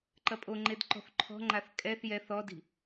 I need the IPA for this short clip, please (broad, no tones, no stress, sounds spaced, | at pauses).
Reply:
ǃ ɐ pʼ o ŋ͡ǃ e d ǃ ɔ̤ θ ǃʰ ɔ̤ ŋ͡ǃ a θ kʼ ɛ θ j ɛ θ ɔ d i̤